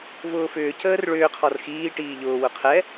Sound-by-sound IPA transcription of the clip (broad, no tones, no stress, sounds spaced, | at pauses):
v ʊː f ʏː c əː r ɭ ʏː qʰ ɔ r x iː ʈ iː ʎ ʊː w ʊ qʰ ɛ